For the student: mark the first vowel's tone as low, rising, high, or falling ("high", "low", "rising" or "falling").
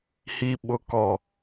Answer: low